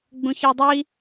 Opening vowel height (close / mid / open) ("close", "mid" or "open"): close